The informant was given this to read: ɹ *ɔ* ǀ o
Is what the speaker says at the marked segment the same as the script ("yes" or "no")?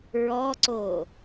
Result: yes